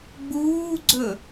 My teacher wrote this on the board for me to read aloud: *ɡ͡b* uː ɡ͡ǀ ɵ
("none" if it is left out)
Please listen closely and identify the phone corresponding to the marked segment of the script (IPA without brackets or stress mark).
ɡ͡b